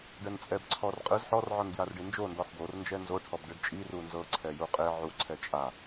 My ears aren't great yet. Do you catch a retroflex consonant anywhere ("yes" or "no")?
yes